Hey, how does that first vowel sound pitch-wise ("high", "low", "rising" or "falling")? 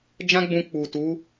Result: high